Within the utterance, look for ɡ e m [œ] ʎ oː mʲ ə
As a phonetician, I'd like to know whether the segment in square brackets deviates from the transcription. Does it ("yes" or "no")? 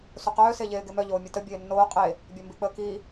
no